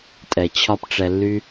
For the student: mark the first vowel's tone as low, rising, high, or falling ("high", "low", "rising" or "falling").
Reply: low